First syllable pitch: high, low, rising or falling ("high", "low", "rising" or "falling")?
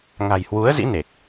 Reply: low